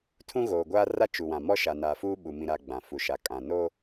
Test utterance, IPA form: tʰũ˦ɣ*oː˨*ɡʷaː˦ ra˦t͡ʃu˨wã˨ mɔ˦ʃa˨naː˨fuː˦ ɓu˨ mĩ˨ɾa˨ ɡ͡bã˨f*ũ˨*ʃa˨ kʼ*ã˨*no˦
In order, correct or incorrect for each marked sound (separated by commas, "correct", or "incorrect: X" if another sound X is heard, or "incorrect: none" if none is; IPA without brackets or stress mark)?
correct, incorrect: u˨, correct